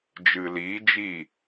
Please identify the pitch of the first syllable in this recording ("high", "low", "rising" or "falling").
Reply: low